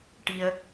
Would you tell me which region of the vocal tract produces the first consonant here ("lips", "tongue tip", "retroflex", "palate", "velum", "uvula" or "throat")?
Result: retroflex